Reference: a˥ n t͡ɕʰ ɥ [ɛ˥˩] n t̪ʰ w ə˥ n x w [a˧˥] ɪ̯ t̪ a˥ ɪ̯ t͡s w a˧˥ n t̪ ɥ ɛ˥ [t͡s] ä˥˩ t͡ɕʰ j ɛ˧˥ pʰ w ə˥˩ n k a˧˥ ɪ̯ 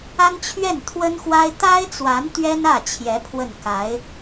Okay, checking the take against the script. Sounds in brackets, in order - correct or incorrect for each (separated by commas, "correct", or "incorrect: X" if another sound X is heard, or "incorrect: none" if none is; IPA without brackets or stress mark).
correct, incorrect: a˥, incorrect: n